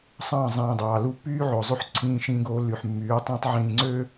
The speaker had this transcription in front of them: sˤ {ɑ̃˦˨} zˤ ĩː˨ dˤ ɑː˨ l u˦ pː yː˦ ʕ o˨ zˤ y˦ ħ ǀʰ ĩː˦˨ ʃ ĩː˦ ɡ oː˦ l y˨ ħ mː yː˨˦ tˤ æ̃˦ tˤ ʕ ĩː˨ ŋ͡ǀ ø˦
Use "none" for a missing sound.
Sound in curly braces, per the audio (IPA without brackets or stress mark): ɑ̃˦˨